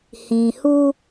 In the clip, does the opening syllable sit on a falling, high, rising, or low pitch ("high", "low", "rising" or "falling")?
low